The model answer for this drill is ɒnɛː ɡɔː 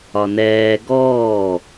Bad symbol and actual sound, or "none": none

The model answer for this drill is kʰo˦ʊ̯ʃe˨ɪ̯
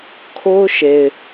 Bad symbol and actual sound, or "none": none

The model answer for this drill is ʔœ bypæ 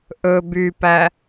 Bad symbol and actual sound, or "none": œ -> ɵ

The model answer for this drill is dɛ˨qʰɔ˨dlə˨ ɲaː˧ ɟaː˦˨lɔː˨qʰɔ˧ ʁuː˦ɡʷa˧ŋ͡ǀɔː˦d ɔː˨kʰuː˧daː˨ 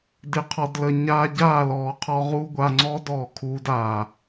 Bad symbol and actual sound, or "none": ɛ˨ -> ɪ˨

